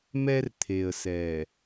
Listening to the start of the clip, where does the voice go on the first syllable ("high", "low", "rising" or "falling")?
high